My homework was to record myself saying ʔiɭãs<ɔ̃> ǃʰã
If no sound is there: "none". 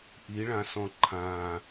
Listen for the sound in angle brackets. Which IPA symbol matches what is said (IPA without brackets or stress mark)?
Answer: ɔ̃